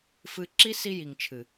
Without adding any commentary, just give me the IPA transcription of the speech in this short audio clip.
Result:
f ɨ˧ ǁ i˦ s i˦ j i˨ ŋ t͡ʃʰ ɨ˨

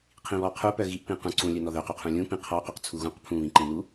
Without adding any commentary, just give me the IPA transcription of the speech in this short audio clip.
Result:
qʰ ĩ β ɔ qʰ u p œ ɣ i ʔ p ĩ q ũ ǀ ũ lʲ œ n ɔ ð œ q u qʰ ũ lʲ ũ p ĩ qʰ ɔ q ɔ q t͡sʰ u ɣ ũ q pʰ ũ β ĩ ǃ ĩ n u

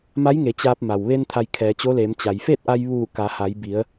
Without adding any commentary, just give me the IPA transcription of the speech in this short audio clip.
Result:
m a˧˥ j ŋ e˩˧ t͡ɕ aː˧ p̚ m a˩ w ʋ e˧ n t̪ʰ a˧ j kʰ ɛː˩˧ t͡ɕ o˧˥ l e˩˧ m t͡ɕ a˩ j f e˥˨ t̚ ʔ a˧ j ʋ uː˧˩ k a˩˧ h a˩˧ j b i˩˧ ə̯

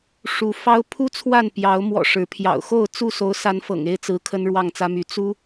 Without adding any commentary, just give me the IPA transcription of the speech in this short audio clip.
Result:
ʂ u˨˦ f ɑ˦ ʊ̯ pʰ u˦ t͡sʰ w a˥˨ n p j ɑ˨˦ ʊ̯ m w ɔ̰˨˩ ʂ ɻ̩˨˦ pʰ j ɑ̰˨˩ ʊ̯ x o˥˨ ʊ̯ t͡s u˥˨ s o˨˦ ʊ̯ s a˨˦ n f ɤ̰˨˩ ŋ e˥˨ ɪ̯ t͡s ɹ̩˨˦ kʰ ə˦ n ɻ w ɑ˥˨ ŋ t͡s ä˦ m y˨˦ t͡s u˦

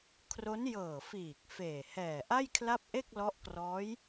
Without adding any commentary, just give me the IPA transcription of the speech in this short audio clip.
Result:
kʰ r o˦˥ n j ɤː˨˩ f iː˨˩ k̚ f eː˨˩ h ɛː˨˩ ʔ a˥˩ j kʰ l a˥˩ p̚ ʔ e˥˩ k̚ l ɔ˦˥ ʔ k r ɔː˦˥ j

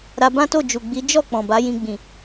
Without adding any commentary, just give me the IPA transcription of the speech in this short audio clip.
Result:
ɾ a˧ b ã˦ t o˦˨ d͡ʒ u˨ ɡ͡b i˨˦ d͡ʒ ɔ˦˨ k͡p ɔ̃˨ b a˨˦ j ĩ˧ ɡ͡b ĩ˨

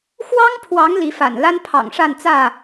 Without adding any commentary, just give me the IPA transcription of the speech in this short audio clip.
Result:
x w ɑ˦ ŋ pʰ w ɑ˨˦ ŋ l i˨˦ f a̰˨˩ n l a˦ n pʰ ɑ̰˨˩ ŋ ʂ a˥˨ n t͡s ä˥˨

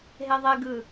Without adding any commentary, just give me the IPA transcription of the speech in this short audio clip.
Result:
ɦ e ðˤ e ɡ ɯ

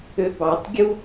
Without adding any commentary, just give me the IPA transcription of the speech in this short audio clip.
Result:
ø b ɑ tˤ ɡʲ u

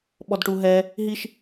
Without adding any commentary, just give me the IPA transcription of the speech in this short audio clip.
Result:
ɓ ɔ d ʈ u ɦ ɛ | ɦ i ʃ

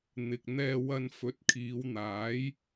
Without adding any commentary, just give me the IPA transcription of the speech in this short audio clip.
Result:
n̪ ɪ˨ k̚ n̪ ɛː˧ w ɐ˧ n f ɵ˨˥ t̚ kʰ iː˨˧ w n̪ aː˨˥ j

